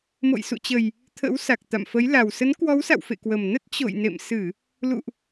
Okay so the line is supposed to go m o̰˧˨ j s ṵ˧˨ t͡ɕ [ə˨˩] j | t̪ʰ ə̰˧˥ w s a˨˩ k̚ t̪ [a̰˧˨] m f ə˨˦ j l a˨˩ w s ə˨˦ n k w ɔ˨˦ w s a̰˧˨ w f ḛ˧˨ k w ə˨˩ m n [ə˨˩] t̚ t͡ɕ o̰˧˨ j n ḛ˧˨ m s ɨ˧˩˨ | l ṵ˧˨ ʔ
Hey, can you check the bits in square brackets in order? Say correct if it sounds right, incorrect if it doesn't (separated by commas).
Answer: correct, correct, incorrect